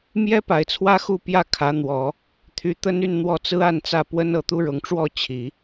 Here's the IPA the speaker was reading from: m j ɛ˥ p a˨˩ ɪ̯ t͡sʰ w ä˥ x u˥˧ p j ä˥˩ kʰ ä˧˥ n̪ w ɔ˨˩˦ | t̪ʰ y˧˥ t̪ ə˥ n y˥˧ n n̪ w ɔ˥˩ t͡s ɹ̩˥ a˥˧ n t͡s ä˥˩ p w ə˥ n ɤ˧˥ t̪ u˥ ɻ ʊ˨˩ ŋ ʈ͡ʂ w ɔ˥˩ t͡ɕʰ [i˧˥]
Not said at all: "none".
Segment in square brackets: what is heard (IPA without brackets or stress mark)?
i˨˩˦